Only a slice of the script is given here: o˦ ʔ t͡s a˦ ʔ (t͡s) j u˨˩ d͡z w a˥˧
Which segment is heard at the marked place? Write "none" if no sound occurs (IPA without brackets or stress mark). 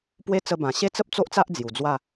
d͡z